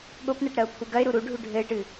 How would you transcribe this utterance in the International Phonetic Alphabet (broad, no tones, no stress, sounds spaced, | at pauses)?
ɠ o p n ɛ ʈ ɾ ɐ ʊ̯ pʰ u ɡ ɐ ɪ̯ ɾ u ɾ u ɖʱ u ɖʱ ɘ ɪ̯ ʈ ɨ